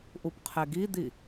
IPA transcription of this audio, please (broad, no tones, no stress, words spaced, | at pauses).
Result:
ʔupqʰeɡid̪i